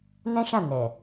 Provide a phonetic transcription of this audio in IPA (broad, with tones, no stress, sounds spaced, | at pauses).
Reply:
n ɛ̃˦ ʃ ã˦˨ n ɛ˨